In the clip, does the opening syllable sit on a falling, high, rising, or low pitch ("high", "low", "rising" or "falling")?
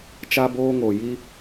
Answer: high